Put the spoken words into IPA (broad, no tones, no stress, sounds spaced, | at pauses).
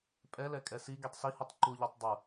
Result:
pʼ ɛ l ɛ kʼ ɛ s i ɡ i tˤ s i h u tˤ ǃ u ʎ ɛ tˤ dˤ u